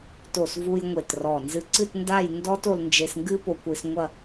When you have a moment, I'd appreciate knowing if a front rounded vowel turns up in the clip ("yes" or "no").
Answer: no